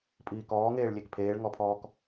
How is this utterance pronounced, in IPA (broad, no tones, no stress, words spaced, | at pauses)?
pʼiːkɔːŋeːɭ lʲekpʰeːɭŋɔpʰɔːk